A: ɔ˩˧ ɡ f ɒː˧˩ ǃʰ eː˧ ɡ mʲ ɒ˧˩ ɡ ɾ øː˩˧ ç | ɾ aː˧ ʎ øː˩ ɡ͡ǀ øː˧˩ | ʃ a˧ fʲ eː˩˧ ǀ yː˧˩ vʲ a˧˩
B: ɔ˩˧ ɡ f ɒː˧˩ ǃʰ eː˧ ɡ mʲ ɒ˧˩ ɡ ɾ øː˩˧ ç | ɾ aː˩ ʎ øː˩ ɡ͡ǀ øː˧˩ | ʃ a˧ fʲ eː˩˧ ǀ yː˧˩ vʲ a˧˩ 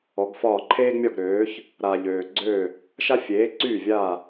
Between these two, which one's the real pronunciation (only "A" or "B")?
B